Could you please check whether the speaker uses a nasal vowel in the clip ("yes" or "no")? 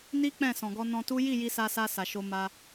yes